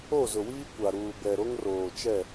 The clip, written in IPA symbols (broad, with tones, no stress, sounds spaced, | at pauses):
o˦˨ z ʊ˨ w iː˦ kʷ a˨ ɾ uː˨ b ɛ˨ ɾ o˦ ŋ r oː˨ t͡ʃ ɛ˦˨